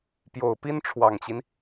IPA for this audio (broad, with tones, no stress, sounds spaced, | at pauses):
p j o˨˩ ʊ̯ p i˥ n ʈ͡ʂʰ w ɑ˨˩ ŋ t͡ɕ i˦ n